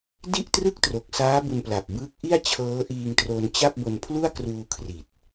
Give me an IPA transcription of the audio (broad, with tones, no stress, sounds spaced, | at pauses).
d i˥˩ ʔ t r ɯ˥˩ k̚ t r o˨˩ k̚ s aː˦˥ b u˧ n p l a˨˩ p̚ b ɯː˦˥ k̚ ʔ i˥˩ a̯ t͡ɕʰ ɤː˦˥ ʔ iː˧ ŋ t r o˧ n t͡ɕ a˥˩ p̚ b o˧ n pʰ l u˥˩ a̯ k r uː˧ kʰ r i˨˩ t̚